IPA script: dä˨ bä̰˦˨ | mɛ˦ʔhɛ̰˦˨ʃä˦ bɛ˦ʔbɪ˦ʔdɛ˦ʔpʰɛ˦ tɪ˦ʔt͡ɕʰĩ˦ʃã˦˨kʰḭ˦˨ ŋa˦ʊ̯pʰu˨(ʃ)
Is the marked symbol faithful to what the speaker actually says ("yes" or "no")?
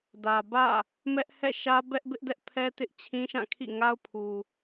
no